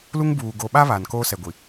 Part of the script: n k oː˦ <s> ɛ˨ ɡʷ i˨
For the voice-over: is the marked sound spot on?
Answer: yes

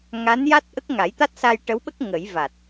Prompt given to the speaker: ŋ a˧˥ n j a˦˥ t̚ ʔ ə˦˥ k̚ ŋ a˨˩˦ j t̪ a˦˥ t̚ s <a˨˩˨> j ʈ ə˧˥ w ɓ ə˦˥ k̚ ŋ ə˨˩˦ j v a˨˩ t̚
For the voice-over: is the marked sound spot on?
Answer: no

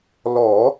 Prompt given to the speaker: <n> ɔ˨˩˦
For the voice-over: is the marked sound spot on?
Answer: no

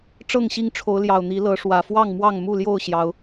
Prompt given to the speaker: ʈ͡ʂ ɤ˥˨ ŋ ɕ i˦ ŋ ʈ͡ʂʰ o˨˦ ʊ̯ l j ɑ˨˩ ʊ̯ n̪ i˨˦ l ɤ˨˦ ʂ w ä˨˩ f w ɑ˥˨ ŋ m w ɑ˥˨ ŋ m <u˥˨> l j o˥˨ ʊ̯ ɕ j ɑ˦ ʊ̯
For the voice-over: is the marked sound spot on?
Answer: yes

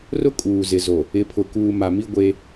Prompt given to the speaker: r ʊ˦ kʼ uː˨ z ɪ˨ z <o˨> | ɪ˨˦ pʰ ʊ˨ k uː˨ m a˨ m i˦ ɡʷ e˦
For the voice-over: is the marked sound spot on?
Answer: yes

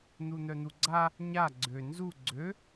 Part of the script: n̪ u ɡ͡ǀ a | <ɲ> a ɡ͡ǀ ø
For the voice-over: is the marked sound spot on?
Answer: yes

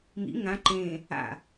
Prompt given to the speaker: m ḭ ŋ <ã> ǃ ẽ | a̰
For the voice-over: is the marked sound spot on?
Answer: yes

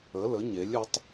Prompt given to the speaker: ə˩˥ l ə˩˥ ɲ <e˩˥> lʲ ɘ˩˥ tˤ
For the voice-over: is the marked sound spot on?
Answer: yes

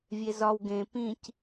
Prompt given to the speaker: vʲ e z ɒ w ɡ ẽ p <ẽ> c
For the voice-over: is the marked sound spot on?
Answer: no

